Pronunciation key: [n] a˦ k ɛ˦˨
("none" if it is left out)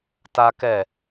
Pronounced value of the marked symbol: t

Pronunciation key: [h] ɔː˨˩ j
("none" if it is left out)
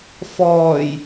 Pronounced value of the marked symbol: f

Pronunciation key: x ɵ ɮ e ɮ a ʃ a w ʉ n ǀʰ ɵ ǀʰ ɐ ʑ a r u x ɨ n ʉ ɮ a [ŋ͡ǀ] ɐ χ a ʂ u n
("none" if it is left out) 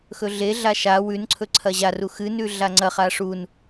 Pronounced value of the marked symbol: ŋ͡ǀ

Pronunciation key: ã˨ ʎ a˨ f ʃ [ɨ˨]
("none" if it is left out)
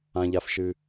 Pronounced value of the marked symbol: ɨ˨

